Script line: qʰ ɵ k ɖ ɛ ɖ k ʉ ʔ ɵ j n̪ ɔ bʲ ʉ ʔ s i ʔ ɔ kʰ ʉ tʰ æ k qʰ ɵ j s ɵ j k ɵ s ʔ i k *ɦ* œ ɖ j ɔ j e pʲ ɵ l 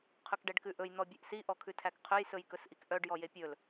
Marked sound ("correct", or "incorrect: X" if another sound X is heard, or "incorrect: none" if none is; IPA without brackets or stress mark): incorrect: ʔ